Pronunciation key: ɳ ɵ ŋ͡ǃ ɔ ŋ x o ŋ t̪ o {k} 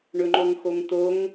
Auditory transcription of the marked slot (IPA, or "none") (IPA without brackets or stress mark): ŋ